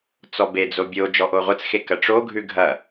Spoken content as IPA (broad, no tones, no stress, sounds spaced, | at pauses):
t͡s ɔ b e d͡z o bʲ o d͡ʒ ɔ ʔ o ʁʷ ə t͡s x e k ɐ ʈ͡ʂ o ɡʱ ʉ ɡʱ ɐ